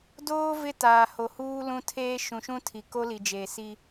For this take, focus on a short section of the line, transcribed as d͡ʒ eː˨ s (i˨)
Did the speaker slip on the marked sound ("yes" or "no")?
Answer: yes